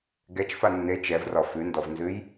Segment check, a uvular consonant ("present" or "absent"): absent